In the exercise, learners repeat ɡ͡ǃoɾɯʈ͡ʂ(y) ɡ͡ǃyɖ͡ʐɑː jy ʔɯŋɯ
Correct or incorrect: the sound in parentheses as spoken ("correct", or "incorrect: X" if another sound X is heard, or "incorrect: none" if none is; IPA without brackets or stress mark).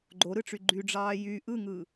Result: correct